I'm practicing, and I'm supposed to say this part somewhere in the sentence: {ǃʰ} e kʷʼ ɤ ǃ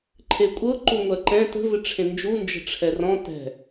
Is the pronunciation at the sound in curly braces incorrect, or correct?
correct